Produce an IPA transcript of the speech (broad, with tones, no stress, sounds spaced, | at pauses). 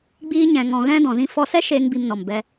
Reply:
ɡ͡b iː˧ ɲ ɛ̃˨ ŋ ɔ̃˨ ɣ ɛ̃˦ d ɔ̃˨ z ĩ˧ f ɔ˧ s ɛ˦ ʃ eː˦ ŋ b i˧ m n ɔ˨ m b ɛ˧